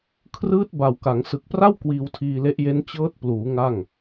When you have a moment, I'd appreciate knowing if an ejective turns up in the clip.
no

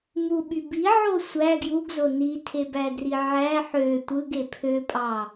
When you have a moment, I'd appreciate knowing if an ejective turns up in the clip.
yes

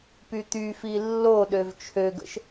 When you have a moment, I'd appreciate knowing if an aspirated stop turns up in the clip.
yes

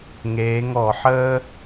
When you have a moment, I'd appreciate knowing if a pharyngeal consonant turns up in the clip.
yes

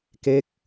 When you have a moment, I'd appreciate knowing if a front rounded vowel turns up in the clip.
no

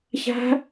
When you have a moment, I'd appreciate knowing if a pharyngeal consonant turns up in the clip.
no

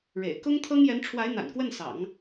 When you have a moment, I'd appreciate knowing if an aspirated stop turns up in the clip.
yes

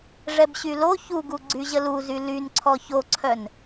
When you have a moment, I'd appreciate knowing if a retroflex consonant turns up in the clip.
yes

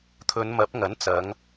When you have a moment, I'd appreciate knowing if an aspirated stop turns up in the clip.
yes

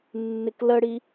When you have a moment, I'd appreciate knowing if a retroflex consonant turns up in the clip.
yes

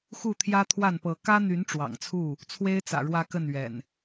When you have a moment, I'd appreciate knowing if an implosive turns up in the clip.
no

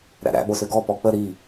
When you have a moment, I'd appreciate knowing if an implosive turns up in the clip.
yes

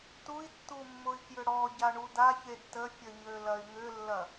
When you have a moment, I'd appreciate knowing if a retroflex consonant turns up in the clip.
yes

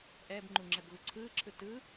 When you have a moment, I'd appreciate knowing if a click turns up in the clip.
yes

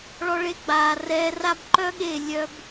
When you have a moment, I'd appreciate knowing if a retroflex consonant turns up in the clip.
yes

